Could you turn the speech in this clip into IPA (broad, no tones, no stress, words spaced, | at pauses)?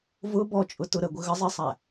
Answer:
vʊ bɔt͡ʃʼʊ tʊɾə ɡʷəɣəzˤisˤæ